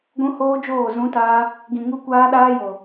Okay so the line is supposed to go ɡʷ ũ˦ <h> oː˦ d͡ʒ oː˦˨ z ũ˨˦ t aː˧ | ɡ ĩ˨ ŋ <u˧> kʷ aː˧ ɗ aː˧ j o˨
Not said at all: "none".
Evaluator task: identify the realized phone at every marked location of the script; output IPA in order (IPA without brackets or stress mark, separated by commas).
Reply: h, u˧